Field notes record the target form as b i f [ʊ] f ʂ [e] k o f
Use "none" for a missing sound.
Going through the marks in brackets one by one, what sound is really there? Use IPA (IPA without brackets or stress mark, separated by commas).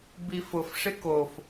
ʊ, e